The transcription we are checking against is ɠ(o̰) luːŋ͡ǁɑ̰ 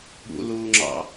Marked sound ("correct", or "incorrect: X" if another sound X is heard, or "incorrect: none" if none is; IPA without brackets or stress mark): incorrect: ṵ